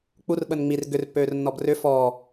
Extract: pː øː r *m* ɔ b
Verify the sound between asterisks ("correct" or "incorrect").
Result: incorrect